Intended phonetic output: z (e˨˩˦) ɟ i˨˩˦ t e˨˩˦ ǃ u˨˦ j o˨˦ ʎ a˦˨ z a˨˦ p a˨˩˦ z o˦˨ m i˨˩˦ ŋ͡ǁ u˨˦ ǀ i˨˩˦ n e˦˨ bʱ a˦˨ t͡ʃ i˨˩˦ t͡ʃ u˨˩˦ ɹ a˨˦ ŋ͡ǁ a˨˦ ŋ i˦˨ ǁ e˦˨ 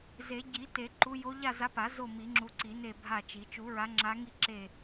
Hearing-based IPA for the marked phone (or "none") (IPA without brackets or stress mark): e˨˩˦